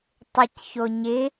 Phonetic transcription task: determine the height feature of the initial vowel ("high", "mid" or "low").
high